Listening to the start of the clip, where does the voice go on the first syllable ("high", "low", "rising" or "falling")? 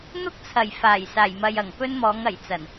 high